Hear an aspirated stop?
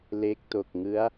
no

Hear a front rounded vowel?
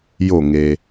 no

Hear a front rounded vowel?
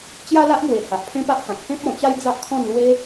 no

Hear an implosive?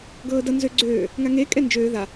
no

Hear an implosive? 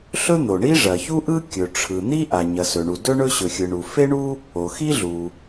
no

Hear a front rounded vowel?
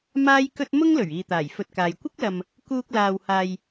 no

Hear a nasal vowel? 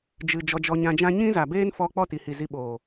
yes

